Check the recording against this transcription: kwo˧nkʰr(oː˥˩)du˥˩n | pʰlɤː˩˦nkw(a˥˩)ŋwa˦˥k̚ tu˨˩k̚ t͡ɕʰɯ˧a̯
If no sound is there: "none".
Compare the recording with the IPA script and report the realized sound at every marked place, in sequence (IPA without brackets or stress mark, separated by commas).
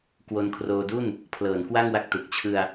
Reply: oː˧, a˥˩